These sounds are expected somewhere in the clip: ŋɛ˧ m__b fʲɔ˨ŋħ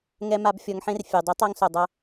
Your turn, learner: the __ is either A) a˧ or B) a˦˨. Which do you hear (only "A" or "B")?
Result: A